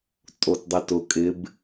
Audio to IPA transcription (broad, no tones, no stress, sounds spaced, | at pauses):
tʼ o t dˤ i t ʊ kʼ ɪ b